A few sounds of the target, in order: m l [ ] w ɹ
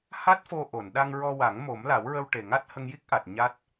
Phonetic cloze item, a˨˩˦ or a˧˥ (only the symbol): a˨˩˦